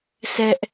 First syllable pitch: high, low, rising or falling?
high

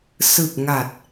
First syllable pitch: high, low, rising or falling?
low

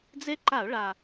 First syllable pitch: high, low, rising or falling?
high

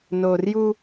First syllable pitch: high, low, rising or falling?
low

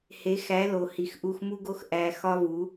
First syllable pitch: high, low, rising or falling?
rising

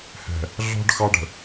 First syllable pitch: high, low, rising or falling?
low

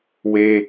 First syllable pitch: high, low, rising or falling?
high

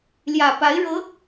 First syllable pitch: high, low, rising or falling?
low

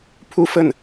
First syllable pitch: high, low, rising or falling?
falling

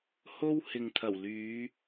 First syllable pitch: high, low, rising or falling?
high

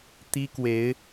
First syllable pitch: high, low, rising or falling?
high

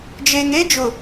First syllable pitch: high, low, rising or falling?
low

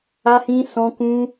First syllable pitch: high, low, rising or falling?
high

